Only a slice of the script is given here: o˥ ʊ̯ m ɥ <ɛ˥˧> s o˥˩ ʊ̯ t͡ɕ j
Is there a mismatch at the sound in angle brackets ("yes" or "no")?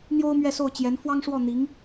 no